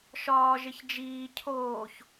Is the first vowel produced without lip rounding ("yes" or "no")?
no